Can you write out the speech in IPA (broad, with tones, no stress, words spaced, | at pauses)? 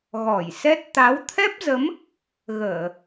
ɣɔ˧˩jsɛ˦˥t̚ t̪a˨˦wt̪ʰɛ˦˥p̚zə˨˦m | ɣəː˧˩˨